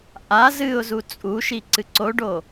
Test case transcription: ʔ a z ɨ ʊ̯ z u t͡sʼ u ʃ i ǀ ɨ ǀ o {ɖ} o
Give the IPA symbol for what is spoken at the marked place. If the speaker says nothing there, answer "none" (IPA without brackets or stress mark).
ɖ